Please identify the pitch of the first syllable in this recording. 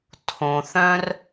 low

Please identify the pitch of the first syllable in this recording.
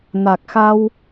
low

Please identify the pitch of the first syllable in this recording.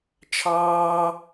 high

